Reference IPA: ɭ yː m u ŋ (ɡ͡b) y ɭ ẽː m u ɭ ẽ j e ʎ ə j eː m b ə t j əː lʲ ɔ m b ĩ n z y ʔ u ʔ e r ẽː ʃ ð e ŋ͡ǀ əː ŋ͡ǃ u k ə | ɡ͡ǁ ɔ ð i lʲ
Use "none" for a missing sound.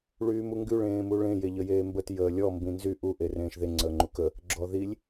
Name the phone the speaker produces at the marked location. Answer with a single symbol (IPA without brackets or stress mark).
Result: ɡ